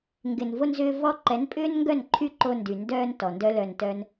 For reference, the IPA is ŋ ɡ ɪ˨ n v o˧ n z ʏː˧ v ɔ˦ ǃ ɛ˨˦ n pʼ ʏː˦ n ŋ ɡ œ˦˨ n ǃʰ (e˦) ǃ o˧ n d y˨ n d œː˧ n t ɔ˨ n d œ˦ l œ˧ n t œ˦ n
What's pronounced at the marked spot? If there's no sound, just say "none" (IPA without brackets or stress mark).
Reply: y˦